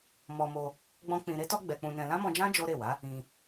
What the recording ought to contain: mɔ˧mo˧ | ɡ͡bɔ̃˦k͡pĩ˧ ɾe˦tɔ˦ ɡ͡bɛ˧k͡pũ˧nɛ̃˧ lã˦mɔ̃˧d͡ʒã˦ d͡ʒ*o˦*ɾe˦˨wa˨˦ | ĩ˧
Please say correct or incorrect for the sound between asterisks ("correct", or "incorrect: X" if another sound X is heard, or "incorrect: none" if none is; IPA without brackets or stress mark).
correct